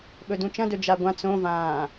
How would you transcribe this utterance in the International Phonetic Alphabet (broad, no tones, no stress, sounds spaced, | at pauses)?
ɓ ɵ d ũ t͡ʃ ɐ̃ d ɵ d͡ʒ a ɡʷ ã t͡s õ v ãː